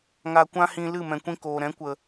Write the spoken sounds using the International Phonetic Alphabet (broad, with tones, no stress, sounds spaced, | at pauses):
ŋ a˧ kʷ ã˦ h ĩ˧ l ɨ˦˨ m ɛ̃˨ kʷ ĩ˧ k oː˨ ɾ ɛ̃˨˦ kʷ ə˨